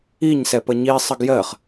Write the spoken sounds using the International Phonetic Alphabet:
iɲ sɛpəɲi sˤəɡjɜχ

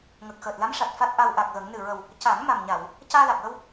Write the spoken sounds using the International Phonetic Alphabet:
ŋə˨˩k̚xəː˨˩t̚la˧˥mʂa˨˩t̚ fa˦˥t̚ʔa˧wʔa˨˩k̚ɣə˨˩˦ŋ nɨ˨˩ɹə˨˩w | ca˨˩˦ŋ ma˨˩mɲa˨˩˨w | caː˧la˨˩k̚wə˧w

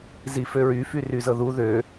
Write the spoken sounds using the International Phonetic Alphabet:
ziføɹy fyryzɤðu ðø

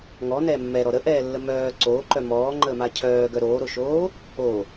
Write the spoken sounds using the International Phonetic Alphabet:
ŋɔnɛː mːɛɾɔ ɾəʔɛːlːə mœː ǀoːǃœ mɔːŋ͡ǃəːma cʰœːɡœ ɾoːɾoʃoː | o

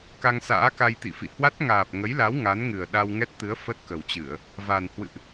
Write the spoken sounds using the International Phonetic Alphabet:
ka˧ŋsa̰ː˧˥ ka˧jt̪ḭ˧˨fḭ˧˨ hwa˦˥t̚ŋaː˨˩p̚ŋə˨˦jla˨˦w ŋa˨˦n ŋɨ˨˩ə̯ɗa˧w ŋɛ˦˥t̚t̪ɨ˨˦ə̯ fə˦˥t̚ kə˨˩wt͡ɕɨ˧˩˨ə̯ | va˨˩n hwɨ̰˧˨ʔ

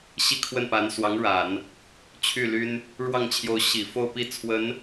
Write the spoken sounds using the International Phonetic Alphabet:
ɕi˥˧kʰwə˥˩npa˧˥n swɑ˧˥ŋɻa˨˩˦n | t͡ɕʰy˥˩ly˥n | ɻwɑ˥˩ŋt͡ɕʰjo˧˥ʊ̯ ɕi˨˩ fo˥˧ʊ̯pi˥˩t͡sʰwə˧˥n

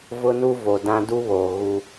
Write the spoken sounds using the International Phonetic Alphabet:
vʊ˦nu˦vo˨ dã˦ du˦βoː˨ ɣu˦

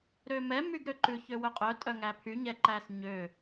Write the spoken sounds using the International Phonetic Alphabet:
ɾømɛ myɡɾøǃʉ çøwœqʼœ tʼœŋæpʰy ɲɛǃæsɲø

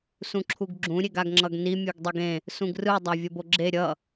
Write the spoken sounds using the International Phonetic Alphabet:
sũǁʰuɡɡ͡ǁũ ɾʲeɡaɡŋ͡ǁʌɡni mʲuɡdˤeɡẽ | sũɡrɯ dˤavʲʌboɡ͡ǁe ɾʲʌ

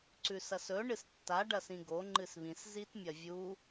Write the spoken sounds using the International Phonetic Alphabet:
ǀʉsɐsɵ ɳɨstːa ɖɐsĩɡo ŋ͡ǃɨsβĩs zitmʲɐvʲu

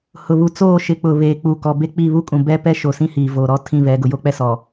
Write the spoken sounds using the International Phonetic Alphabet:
hʊ˨βu˨t͡soː˦˨ ʃɪ˨k͡pʊ˨ βeː˨k͡pu˨ kɔ˨be˦k͡pi˦˨ βu˦kʼũ˨ bɛ˦pɛ˦ʃo˨sĩ˦ hiː˨voː˨ɾɔ˦ tʰĩ˦˨βɛ˨˦ ɡʊ˨jo˦k͡pɛ˦sɔ˨

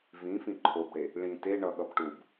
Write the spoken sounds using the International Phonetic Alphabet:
vĩfĩ ǃʰobɽe | ɭĩ te ɳʌɠʌb ʈub

